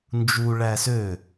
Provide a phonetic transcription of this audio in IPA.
n d͡ʒ u ɭ æ s ø

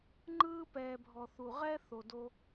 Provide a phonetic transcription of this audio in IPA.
ŋ͡ǃ ɯː˦ p ɛː˨ bʱ ɔ˨ θ u˨ ʁ ɛ˦ θ o˨ d o˦

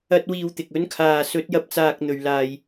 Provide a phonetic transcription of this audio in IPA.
ɐ˧ t̚ w iː˧ w t̪ ɪ˨ k̚ ɵ˨˥ n kʰ aː˨ s ɵ˨˥ t̚ j ɐ˧ p̚ t͡s aː˧ k̚ n̪ ɵ˨ ɥ l aː˨ j

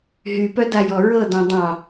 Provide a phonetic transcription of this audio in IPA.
ɦ y p œ d a j ɔ ɹ ɤ d ɔ̃ dˤ ɑ̃

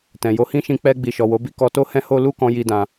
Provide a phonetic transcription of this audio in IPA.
t ɛ̃˨ j o˧ h ĩ˦ ʃ ĩ˧ k͡p ɛ˧ ɡ͡b i˨ ʃ ɔ˨ w o˨˦ b i˦ k ɔ˧ t o˦ h ɛ̃˦ h o˦ l u˦˨ k ɔ̃˧ j i˧ d ã˧

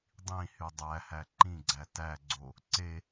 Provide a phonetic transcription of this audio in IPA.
dˤ ĩ h y dˤ æ h æ ǃ ĩ ɡ͡ǀ æ t æ ɡ͡ǀ o | ǀ e

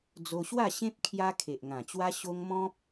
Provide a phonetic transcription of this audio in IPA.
d͡z o˧ ɕ w a˥˧ ɕ ẽ˦ p̚ kʰ j a˦ kʰ e˨ ʔ ŋ ã˨˩ t͡ɕ w a˦ ɕ o˦ ŋ m ɔ̃˦ p̚

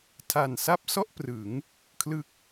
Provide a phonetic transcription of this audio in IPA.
tʰ a˨˩ n s a˥˩ p̚ s ɔ˥˩ ʔ p r ɯ˩˦ ŋ | kʰ l ɯ˦˥ k̚

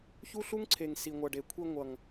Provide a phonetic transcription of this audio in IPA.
ç u˦ ɬ u˦ ŋ ǀʰ e˨ ŋ s i˨ ŋʷ ʌ˨ ɖ e˨ kʷʰ i˧ ŋʷ ʌ˨ ŋ

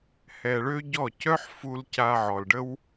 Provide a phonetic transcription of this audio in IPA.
h ɛ˧ ɭ ø˦ ɟ ɔ˦˨ c œ˦ ħ f u˧ l c a˧ ʕ ɔ˨ l ɖ ə˦ w

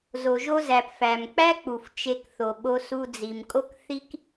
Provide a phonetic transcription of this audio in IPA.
z o˩ ʒ o˥ z æ˩ p f æ˩ m k͡p æ˥ k͡p u˩ f t͡ʃ e˧ k θ o˩ ɓ o˧ s u˧ d͡z i˩ m kʼ o˥ k θ i˥ k

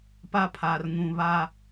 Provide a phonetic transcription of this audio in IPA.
p a˦ pʰ a˨ r ŋ ũ˨ β a˦

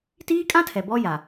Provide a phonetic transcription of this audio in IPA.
t iː˦ kʼ ã˦ tʰ ɛ˨ b ɔ˦ j a˨

